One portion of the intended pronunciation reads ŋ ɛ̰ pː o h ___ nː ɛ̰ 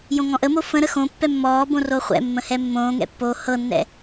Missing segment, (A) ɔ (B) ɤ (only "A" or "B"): B